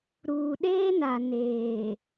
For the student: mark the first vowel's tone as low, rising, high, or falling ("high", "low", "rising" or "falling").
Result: low